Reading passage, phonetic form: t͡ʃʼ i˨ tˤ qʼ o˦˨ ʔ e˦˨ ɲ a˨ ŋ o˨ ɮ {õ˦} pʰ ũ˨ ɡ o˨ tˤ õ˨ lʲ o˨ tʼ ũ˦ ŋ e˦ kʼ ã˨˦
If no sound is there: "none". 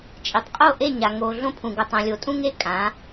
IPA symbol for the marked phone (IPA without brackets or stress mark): õ˦